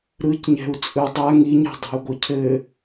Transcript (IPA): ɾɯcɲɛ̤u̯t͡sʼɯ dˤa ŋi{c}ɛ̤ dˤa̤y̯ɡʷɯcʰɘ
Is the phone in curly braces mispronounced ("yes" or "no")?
yes